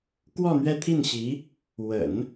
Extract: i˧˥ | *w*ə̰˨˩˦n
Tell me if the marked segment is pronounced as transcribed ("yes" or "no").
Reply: yes